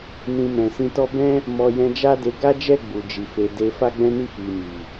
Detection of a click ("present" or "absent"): absent